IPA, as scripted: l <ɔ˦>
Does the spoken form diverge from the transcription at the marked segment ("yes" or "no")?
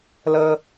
yes